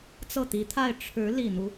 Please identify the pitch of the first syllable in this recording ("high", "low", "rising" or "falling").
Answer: falling